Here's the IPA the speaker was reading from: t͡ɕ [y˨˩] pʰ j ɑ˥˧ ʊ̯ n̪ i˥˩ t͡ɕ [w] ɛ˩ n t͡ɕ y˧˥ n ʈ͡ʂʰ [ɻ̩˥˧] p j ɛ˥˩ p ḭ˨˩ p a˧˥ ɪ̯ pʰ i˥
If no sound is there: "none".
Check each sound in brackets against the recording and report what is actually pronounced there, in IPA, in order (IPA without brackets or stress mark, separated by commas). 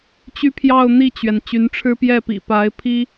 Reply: y˥, ɥ, ɻ̩˥